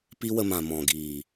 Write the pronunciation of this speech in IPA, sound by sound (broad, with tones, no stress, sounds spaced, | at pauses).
p i˦ w ə˧ m ã˨ m ɔ̃˨ ɡ iː˨